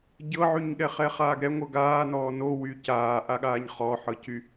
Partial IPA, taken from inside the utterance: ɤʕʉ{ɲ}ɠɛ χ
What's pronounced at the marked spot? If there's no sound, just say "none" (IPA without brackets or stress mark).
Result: ɲ